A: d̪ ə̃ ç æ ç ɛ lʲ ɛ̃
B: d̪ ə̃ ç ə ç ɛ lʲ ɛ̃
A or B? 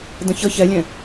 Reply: B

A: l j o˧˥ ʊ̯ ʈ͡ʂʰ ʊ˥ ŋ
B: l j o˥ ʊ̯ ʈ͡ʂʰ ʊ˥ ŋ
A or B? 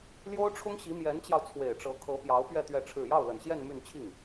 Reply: B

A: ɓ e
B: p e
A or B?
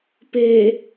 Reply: B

